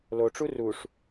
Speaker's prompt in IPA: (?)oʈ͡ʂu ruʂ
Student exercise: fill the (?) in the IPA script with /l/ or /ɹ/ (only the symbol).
l